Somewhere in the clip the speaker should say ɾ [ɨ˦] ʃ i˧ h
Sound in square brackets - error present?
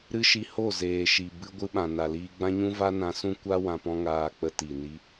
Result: no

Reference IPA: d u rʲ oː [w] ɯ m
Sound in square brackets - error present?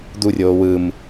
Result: no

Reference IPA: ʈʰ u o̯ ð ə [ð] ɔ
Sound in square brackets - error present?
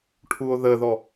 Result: no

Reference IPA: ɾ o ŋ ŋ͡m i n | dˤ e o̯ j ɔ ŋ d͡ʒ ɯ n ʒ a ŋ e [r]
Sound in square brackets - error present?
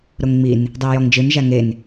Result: yes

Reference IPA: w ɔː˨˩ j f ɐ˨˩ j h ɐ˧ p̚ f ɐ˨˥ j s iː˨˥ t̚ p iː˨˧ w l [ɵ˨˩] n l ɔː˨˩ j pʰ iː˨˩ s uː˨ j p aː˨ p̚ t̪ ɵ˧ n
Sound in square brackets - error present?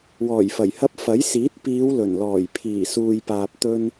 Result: no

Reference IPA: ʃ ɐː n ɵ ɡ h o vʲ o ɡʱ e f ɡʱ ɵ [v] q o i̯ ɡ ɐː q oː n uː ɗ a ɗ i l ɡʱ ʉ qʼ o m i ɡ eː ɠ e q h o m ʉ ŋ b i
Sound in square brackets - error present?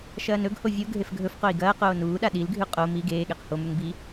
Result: yes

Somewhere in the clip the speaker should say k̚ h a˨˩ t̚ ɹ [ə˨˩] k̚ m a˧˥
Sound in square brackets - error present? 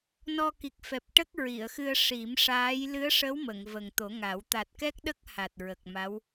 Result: no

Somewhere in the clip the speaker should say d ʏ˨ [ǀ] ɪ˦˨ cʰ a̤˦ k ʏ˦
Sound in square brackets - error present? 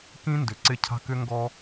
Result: no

